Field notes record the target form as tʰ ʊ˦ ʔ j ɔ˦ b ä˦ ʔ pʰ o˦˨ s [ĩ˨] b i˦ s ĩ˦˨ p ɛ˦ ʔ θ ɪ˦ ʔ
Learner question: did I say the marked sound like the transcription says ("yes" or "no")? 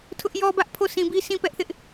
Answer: yes